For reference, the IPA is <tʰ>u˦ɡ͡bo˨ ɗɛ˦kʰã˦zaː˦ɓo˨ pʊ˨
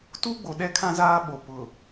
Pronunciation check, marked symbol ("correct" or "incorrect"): incorrect